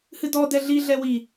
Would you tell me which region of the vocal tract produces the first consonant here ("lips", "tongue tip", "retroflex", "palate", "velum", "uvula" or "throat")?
throat